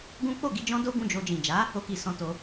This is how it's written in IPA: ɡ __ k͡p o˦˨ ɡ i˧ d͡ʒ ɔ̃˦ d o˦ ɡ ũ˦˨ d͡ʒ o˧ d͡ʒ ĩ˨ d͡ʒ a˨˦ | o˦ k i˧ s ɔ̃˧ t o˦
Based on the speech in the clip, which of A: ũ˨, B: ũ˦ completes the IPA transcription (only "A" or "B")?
B